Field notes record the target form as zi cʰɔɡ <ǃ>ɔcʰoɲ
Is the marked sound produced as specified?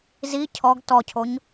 no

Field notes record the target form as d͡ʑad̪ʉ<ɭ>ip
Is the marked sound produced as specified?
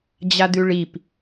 yes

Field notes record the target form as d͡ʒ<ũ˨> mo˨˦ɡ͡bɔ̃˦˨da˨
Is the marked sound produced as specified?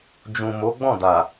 yes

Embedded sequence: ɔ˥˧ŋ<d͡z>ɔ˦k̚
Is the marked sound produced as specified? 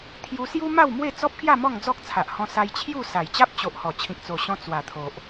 yes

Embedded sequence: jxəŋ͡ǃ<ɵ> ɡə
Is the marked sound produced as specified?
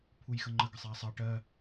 no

